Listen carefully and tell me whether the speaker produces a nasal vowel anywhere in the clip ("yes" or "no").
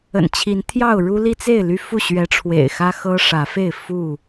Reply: no